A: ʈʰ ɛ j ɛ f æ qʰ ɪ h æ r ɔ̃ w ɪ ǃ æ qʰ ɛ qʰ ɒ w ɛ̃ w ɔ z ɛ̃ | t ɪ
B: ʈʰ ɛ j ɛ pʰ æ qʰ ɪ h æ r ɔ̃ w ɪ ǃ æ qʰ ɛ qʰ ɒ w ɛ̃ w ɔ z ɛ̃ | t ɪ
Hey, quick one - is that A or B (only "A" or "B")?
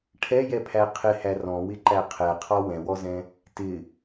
B